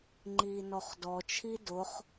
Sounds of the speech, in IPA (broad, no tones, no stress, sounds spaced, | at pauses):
ŋ͡ǃ iː n ɔ χ d ɔ t͡ʃʰ i d ʊ χ